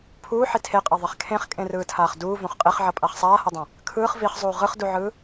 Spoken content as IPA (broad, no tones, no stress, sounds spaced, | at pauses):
pʰ uː ħ i tʰ e qʼ a ðˤ e χ kʰ ẽ χ kʼ ẽ r ɯː tʰ aː χ d uː v õ χ qʼ e χ ʕ ʌ pʼ a χ sˤ aː h ʌ dˤ ã | kʰ ɯː χ v i χ zˤ uː ʁ ɯ χ d u ʕ ɯː